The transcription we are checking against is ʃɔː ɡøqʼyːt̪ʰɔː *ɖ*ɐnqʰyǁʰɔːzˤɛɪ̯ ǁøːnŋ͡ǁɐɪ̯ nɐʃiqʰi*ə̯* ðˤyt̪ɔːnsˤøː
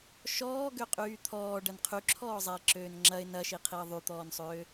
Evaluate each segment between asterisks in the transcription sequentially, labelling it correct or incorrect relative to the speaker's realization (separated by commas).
correct, correct